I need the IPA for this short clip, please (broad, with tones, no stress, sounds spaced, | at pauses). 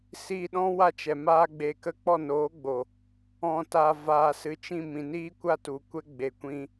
s iː˧ ɗ ɔ̃˦ w a˦ t͡ʃ ɛ˨ m aː˦ ɡ͡b e˧ k ə˦ k͡p ɔ˦˨ n oː˨˦ ɡ͡b o˨ | ɔ̃˨ t a˨ v aː˨ s ɨ˨ t͡ʃ ĩ˦˨ m ĩ˨ n iː˦ kʷ a˦ t u˨ kʷ ɛ˦ ɡ͡b e˨ kʷ ĩ˧